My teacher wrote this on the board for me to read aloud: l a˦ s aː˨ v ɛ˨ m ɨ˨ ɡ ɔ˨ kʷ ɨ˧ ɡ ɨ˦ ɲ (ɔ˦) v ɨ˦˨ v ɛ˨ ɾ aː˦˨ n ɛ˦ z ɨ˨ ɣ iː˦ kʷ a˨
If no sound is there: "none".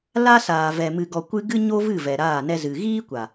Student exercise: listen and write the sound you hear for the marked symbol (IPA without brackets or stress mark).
o˦